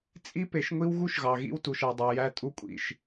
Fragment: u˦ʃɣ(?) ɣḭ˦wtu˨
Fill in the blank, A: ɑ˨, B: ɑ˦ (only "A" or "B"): A